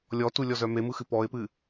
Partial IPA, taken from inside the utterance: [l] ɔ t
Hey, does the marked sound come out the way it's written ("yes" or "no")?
no